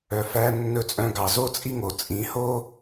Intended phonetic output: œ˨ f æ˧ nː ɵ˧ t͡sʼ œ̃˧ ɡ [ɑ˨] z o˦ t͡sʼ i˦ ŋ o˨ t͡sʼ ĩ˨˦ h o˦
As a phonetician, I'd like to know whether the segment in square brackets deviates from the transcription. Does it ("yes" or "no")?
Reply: no